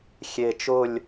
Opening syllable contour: low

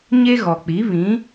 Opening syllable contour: high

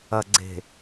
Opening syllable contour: low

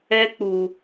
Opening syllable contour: high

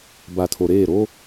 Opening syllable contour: low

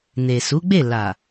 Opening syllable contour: low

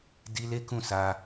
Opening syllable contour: high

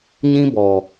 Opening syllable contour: high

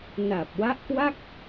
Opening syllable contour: low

